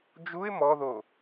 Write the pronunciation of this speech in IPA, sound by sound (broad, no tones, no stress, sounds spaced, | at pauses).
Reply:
d͡ʒ u ɪ̯ m ɔ ð o